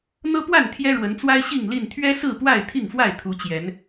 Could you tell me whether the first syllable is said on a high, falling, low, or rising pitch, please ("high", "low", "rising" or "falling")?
high